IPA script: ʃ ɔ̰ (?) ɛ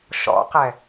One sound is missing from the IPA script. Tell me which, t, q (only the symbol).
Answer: q